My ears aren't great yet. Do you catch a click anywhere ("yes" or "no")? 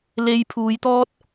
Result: no